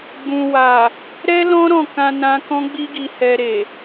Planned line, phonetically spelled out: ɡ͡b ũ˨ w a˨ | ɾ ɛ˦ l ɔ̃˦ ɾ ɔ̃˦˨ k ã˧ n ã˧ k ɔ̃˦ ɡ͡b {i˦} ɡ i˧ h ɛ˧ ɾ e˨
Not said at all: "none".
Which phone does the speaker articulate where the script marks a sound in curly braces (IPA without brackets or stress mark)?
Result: i˦